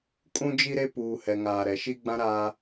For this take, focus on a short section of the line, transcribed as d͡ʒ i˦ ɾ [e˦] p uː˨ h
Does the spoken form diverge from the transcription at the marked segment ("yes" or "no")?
no